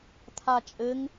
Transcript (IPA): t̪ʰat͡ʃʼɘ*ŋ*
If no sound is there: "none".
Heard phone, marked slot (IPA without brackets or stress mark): ŋ